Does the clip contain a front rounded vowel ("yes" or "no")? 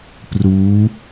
no